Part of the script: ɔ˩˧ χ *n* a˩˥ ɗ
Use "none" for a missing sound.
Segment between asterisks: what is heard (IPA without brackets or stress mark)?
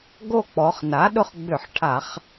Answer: n